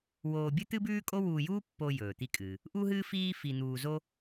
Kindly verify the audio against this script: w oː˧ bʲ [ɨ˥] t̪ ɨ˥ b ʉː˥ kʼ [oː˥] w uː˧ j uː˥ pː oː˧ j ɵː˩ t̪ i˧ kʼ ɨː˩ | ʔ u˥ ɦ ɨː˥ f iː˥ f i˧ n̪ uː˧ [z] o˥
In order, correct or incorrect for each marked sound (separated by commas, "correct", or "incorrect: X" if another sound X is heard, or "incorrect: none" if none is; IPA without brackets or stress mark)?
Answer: correct, incorrect: o˥, correct